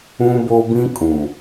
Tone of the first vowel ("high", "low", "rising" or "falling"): high